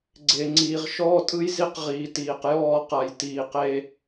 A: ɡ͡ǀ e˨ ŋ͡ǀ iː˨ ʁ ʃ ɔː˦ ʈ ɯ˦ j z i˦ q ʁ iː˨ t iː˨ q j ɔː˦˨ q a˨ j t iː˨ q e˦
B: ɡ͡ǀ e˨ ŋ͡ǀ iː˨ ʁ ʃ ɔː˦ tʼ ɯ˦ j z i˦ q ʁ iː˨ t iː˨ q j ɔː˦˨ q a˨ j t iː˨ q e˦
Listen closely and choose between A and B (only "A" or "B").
B